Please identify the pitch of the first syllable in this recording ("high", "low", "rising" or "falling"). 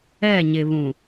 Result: falling